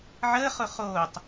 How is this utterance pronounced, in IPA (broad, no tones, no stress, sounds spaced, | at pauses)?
ʕ əː χ ʊ χ oː tˤ